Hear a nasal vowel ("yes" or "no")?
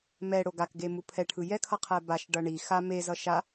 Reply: no